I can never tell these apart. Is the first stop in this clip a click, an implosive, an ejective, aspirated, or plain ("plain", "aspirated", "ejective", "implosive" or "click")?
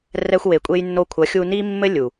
ejective